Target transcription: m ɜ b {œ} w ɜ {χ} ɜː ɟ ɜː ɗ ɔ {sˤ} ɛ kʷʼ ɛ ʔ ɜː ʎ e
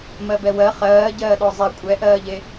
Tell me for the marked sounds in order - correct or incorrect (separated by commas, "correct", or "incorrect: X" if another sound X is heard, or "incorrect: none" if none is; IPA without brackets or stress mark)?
incorrect: ɛ, correct, incorrect: zˤ